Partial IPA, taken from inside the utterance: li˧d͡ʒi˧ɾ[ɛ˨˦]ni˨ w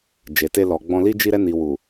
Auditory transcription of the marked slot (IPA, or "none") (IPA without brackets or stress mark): ɛ˧